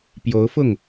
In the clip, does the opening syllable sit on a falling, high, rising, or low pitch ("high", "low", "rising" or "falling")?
rising